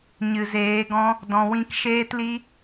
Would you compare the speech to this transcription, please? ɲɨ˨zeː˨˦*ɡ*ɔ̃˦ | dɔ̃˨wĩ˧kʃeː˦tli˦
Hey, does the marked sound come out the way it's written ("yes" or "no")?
yes